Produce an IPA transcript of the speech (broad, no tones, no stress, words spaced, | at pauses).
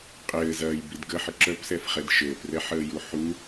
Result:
qʼɘːzɐːjbid ɡəħə ǁœpsɛfχɛd ʃɘːprɛħəːju ħu